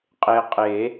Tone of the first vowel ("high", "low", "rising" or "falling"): low